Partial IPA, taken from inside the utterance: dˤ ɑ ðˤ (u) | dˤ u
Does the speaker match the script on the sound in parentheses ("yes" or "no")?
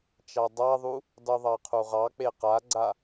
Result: yes